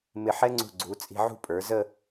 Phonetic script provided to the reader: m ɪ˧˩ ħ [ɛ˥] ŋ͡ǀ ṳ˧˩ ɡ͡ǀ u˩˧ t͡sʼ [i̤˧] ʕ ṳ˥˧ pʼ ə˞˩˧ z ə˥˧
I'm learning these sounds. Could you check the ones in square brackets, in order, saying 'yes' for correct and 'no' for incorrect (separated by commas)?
yes, yes